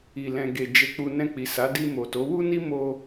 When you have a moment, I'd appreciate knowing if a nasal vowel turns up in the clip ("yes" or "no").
yes